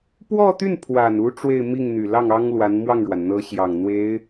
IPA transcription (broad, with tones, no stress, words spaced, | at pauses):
pwɔ˥˧t̪y˥˩n pʰwa˨˩nu˧˥ ʈ͡ʂwe˥˧ɪ̯mi˥˩ŋn̪y˨˩ lɑ˥˩ŋɑ˥ŋlwa˧˥n mwɑ˥˩ŋɻwa˩nn̪ɤ˧˥ɕjɑ˨˩ŋ n̪we˧˥ɪ̯